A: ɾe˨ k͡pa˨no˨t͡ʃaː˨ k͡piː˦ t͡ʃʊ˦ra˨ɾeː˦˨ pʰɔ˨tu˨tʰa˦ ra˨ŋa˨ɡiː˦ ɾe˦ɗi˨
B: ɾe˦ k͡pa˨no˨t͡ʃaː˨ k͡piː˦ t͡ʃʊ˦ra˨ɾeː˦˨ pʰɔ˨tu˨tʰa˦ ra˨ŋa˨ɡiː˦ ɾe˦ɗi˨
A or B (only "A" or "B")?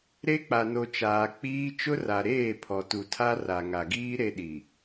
B